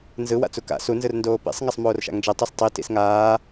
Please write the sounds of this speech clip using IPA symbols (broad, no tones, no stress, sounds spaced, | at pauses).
n z ɯ w a̰ t͡s u k a̰ s u n z ɯ r n d oː p ḭ sˤ ŋ a sˤ m oː r ʃ a̰ ŋ d͡ʒ ɛ tˤ u s tˤ i t ḭ s ŋ aː